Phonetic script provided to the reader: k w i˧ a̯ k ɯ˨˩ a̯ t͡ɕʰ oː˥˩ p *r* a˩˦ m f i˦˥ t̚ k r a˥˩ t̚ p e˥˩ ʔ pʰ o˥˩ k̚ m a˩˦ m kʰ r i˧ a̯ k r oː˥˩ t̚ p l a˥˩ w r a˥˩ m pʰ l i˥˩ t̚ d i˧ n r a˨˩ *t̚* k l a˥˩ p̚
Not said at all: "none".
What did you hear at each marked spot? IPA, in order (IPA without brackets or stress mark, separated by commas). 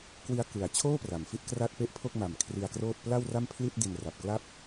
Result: r, p̚